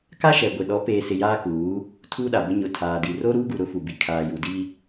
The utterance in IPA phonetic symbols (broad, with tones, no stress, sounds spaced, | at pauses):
k a˦ ʃ ɛ˨ ɡʷ ɪ˨ ɗ ɔ˨˦ p eː˨ s ɪ˨ j aː˦ k uː˨˦ | tʰ uː˦ ɗ a˨ b ʊ˦ ɲ ʊ˨ tʰ aː˨ d i˨ r o˦ ɾ uː˦ ɡ u˨ ɾ ʊ˦ f u˨ b i˨ kʰ aː˨ j u˨ d i˦